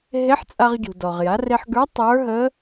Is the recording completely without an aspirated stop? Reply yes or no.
yes